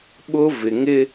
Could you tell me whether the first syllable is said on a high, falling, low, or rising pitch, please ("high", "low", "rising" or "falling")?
high